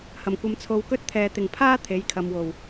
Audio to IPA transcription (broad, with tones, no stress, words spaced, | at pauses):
hɐ˨˩mkʷɐ˧mt͡sʰo˧w kɵ˥t̚t̪ʰɛː˨ t̪ɪ˨˩ŋpʰaː˥ t̪ʰe˨˥jkʰɐ˨mwo˨˩w